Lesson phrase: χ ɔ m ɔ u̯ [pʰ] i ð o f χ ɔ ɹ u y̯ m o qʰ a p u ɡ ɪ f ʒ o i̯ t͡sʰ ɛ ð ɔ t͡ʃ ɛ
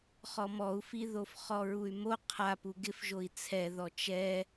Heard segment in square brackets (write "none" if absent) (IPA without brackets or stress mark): f